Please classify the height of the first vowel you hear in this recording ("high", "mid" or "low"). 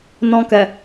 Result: mid